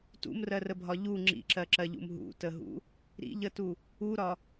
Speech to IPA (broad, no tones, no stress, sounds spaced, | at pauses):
t ṵ m r ɜ r ə bʱ ɒ ʎ u ŋ͡ǁ ḭ ǁ ɜ ǁ ɜ ʎ ṵ m ɦ ṵ t ə ɦ ṵ | ɾ ḭ ʎ ə t u | u ɾ ɒ